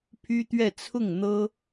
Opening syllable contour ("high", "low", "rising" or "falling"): high